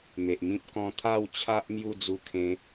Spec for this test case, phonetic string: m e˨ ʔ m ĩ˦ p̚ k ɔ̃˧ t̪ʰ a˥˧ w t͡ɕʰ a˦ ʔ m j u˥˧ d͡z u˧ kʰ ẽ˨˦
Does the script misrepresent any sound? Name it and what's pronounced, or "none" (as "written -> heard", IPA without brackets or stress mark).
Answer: none